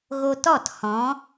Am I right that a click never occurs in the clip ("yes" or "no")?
yes